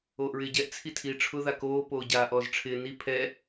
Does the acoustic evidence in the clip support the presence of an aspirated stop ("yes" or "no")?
yes